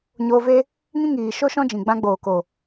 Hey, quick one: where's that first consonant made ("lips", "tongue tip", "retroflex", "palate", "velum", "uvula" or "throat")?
palate